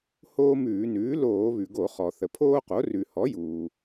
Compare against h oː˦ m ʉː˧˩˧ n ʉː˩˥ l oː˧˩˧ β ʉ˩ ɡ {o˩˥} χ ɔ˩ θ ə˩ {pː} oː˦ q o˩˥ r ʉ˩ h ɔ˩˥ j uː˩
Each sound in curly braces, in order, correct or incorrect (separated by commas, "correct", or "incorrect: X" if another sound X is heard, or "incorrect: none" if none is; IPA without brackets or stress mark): incorrect: o˧˩˧, incorrect: pʰ